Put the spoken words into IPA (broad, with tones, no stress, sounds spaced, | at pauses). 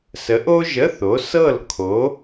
s ə˨˥ ʔ o˥ ʒ ə˧˥˧ θ o˨˥ s ɤ˥˨ l kʰ o˨˥